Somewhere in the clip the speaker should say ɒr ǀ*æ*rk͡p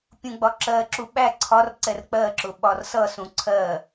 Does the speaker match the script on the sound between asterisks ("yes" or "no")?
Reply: no